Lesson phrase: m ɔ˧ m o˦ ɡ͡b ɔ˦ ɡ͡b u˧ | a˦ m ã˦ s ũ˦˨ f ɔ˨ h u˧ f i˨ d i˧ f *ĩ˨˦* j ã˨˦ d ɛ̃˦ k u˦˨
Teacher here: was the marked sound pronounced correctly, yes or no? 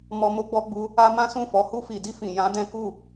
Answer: no